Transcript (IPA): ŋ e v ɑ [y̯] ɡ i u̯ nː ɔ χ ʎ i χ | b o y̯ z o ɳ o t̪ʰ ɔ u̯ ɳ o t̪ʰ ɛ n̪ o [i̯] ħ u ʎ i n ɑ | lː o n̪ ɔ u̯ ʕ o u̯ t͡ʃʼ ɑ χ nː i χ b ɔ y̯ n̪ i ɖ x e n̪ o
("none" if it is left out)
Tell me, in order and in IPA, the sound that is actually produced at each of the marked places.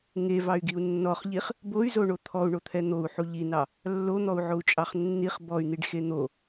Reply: y̯, u̯

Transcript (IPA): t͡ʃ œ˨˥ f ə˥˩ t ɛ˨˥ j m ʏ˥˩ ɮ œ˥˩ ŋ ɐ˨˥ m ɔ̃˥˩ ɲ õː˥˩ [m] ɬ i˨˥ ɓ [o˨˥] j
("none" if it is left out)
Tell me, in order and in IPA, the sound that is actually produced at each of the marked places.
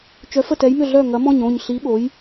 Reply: ɲ, o˨˥

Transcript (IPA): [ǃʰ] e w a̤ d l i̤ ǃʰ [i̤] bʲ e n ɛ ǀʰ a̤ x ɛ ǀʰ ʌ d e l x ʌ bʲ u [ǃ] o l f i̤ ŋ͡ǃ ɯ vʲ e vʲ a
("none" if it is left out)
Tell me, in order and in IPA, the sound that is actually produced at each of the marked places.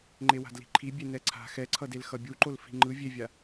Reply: ŋ͡ǃ, i, ǃ

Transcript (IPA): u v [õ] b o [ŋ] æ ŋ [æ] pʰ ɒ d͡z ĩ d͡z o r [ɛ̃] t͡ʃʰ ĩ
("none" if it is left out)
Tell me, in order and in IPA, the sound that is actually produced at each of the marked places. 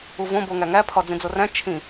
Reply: õ, ŋ, æ, æ̃

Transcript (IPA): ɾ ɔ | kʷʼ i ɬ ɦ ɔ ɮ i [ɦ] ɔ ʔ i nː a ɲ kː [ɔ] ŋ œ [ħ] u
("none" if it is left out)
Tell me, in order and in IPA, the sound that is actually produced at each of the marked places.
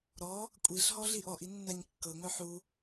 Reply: ʔ, ɤ, ħ

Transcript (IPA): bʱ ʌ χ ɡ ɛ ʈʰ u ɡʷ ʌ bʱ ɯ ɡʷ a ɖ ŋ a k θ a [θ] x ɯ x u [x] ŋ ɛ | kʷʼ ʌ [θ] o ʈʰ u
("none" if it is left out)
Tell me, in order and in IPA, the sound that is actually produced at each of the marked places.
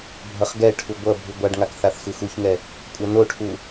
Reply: θ, ç, n

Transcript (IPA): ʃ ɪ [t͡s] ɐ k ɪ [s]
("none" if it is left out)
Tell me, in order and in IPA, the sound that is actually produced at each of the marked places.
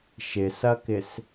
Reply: s, s

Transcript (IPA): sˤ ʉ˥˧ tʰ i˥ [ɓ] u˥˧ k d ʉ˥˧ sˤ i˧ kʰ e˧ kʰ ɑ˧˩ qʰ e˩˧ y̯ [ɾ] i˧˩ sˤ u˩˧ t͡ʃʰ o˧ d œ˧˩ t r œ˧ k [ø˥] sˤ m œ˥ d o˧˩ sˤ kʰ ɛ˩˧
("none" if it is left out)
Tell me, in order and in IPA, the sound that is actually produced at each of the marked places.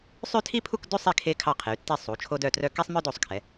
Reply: pʰ, tː, e˥

